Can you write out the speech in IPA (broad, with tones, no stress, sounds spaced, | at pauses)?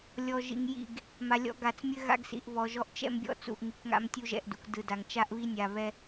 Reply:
lʲ ɔ˨ ʒ ḭ˨ ŋ j ḭ˦˨ ɡ | m a˨ lʲ ɔ̰˦ ɡ a˨ t͡s mʲ ɘ˦ ɣ a̰˦ ɡ s ḭ˨ ʔ β ɔ˨ ʒ ɔ˦ ʔ t͡ʃ ɛ̰˦ m bʲ ɔ̰˦ t͡s ṵ˨ ʔ ŋ i˨ k ŋ a̰˦ m tʲ u˦ ʒ ɛ̰˨ ʔ d ṵ˨ k d ɯ˨ d a˨ ŋ t͡ʃ a˦ ʔ β i˦ nʲ a˨ β ɛ˦